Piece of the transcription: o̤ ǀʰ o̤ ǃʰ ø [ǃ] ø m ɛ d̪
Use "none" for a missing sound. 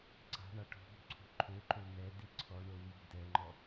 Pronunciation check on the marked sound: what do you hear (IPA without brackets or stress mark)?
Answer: ǃ